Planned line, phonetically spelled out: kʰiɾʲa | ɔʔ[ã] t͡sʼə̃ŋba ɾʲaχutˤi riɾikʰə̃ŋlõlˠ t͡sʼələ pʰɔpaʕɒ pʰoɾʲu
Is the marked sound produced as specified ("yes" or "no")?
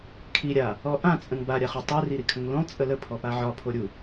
yes